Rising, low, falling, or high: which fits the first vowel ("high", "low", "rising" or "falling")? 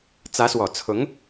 rising